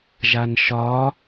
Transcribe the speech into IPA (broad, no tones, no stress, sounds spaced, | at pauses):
ʒ a n ʃ ɒ